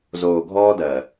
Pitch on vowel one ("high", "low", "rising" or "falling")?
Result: low